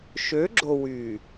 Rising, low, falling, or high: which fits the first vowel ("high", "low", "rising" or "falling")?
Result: rising